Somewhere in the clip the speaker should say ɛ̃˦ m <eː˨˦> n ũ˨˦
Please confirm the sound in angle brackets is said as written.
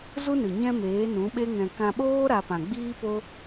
yes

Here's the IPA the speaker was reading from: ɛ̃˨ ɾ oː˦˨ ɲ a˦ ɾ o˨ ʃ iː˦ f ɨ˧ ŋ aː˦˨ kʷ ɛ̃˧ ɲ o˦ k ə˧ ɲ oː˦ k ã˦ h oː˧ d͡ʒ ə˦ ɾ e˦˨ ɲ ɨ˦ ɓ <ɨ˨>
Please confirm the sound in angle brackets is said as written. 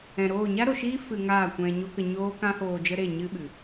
yes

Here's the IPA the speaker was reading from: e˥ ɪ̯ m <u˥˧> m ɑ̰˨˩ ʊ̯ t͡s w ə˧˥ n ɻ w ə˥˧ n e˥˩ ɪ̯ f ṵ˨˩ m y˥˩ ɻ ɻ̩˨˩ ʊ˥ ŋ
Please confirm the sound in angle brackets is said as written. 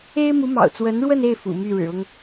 no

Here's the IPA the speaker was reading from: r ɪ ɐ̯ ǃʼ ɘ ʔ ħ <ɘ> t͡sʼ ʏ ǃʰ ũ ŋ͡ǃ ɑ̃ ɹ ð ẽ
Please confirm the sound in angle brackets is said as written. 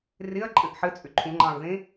yes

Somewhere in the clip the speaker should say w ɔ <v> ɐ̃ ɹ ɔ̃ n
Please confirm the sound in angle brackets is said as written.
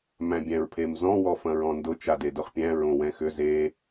no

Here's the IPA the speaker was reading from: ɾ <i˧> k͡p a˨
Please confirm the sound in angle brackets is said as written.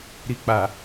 yes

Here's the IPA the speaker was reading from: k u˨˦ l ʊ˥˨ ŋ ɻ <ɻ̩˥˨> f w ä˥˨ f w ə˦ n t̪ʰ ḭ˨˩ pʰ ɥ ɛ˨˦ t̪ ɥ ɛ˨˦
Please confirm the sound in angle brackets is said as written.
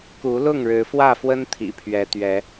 no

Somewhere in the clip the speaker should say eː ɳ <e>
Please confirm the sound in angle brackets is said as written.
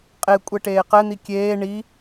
no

